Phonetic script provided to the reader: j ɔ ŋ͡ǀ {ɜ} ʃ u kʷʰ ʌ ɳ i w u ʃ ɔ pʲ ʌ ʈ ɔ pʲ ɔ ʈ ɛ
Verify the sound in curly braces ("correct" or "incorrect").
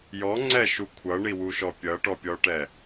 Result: incorrect